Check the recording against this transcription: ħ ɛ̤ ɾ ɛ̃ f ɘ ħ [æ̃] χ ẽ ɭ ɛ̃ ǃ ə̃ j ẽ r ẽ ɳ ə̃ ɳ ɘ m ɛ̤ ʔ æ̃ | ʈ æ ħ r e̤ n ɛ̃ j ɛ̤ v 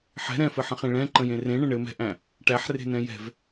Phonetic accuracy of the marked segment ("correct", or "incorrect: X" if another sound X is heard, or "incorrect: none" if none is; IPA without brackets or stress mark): incorrect: ə̃